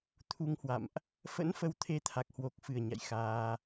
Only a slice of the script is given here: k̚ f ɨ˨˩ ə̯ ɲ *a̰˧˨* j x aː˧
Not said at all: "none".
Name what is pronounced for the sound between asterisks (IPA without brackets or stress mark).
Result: a̰˧˨